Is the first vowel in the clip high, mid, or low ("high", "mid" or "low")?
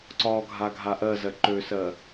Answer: low